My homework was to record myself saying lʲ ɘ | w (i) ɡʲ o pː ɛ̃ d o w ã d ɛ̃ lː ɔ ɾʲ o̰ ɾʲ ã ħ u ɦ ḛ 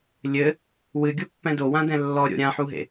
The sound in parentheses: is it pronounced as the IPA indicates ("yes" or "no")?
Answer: no